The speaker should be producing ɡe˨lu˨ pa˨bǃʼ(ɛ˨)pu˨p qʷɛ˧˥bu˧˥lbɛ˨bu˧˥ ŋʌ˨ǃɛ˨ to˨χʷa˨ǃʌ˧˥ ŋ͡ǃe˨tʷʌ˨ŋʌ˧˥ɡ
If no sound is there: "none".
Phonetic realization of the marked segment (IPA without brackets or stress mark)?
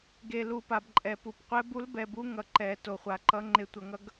ɛ˨